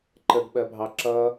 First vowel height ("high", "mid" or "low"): mid